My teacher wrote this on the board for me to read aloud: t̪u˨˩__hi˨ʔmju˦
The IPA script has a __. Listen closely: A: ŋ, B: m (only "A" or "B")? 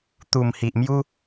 B